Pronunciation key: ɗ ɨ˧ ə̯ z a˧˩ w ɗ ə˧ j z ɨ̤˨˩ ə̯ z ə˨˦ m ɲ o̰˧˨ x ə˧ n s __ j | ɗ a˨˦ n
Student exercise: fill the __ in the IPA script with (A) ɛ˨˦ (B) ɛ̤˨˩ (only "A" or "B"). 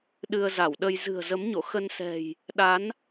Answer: B